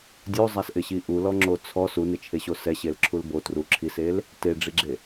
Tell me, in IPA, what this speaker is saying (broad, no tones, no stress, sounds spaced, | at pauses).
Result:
dʲ o zˤ a s ʔ ɪ ɕ i ʔ u l ɔ ŋ͡ǁ o t͡sʰ ɔ s u n ɪ t͡ʃʰ e ɕ o s ɛ ɕ e l ǁʰ u l b o t r u ǁʰ i s e l | t e ɖ͡ʐ i ɡ͡ǁ e